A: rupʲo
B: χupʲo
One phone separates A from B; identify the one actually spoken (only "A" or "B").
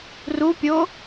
A